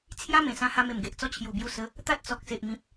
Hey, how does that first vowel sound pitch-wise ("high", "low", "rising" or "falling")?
high